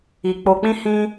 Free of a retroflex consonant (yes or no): yes